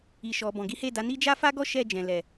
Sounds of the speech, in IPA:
i˨ʃɔ˨ bɔ̃˨ɡi˨˦he˦˨da˨˦ ni˦ d͡ʒa˦fa˦ɡɔ˦ ʃɛ˦˨d͡ʒɛ̃˨lɛ˨

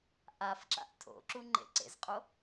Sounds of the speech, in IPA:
ʔafǁa̰ʔ tʰo̰ǁu ŋ͡ǃḛǀḛzqʼo

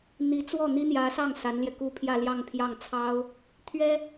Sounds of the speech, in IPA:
n̪i˧˥t͡swɔ˥˩ n̪i˥n̪jä˧˥sɑ˥˩ŋ sa˧˥nljɛ˧ku˥˧ pʰjä˥˧ljɑ˥˧ŋpʰjɑ˥˩ŋ t͡sʰɑ˥ʊ̯ | t̪ʰɥɛ˥

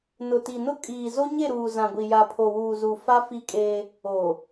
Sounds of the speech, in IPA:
nʊ˨ti˨nʊ˦ kʼiː˨zo˦ɲe˦˨ɾuː˨ zã˨ɡʷi˨ ja˨pʰo˨wuː˨zu˨ fa˦ fi˦kʼeː˦ | oː˨

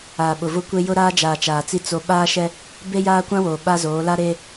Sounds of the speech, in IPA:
aː˨ɓʊ˨vʊ˦kʷe˦ jʊ˦ɾaː˦d͡ʒaː˨ t͡ʃaː˨t͡si˦ t͡so˦ ɓaː˦ʃɛ˦ | be˦jaː˦ kʷã˦woː˨ ɓa˦zoː˨˦ la˦ɾeː˦

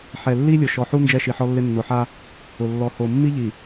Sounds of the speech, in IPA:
ħɛ˨lːi˦lʲʊ˨ ʃɔ˨ħu˦ nd͡ʒɛ˦ʃi˨ħɔ˦lːɪ˦ nːʊ˨ħa˦ | ʊ˨ lːɔ˨ho˨ mːi˦ʎi˨

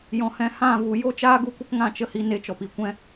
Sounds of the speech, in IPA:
jɔ̃˨hɛ̃˧ hã˦˨vu˨ jo˦t͡ʃaː˦ɡu˧kʷə˦k ŋã˧t͡ʃə˦hi˧ ne˧t͡ʃɔ˨pi˨ kʷɛ̃˦

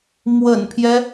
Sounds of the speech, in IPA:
mwə̰˨˩npʰjɛ˦

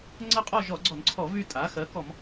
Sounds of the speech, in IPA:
ŋ͡ǀə˥˧qʼɔ˥˧ ʒɔ˧˩˧ɡ͡ǀɔ˧˩˧nǀʰɔ˧˩˧ vy˥˧tʼa˩˥ xɜ˩˥kɔ˧˩˧m

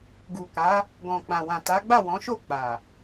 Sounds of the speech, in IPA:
ɡu˨ka˨˦ | ɡɔ̃˨k͡pã˨ wã˨ta˨˦ɡ͡ba˦˨ wɔ̃˨˦ʃo˦˨ k͡pa˨

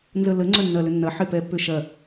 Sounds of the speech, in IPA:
nzələ ŋ͡ǀœnːɐlʏnːɐ ħɪpɛpːʏʃɐ

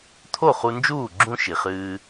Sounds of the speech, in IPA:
t̪ʰo˦˨χu˧nd͡ʒuː˦˨ ɡ͡ǁũ˦ ʃi˨χɨː˧

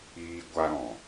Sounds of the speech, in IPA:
iː˧ɡʷa˧ɾɔ̃˨

